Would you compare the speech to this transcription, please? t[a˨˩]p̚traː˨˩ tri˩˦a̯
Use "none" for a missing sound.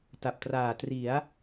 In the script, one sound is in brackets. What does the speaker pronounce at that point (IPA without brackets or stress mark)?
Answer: a˨˩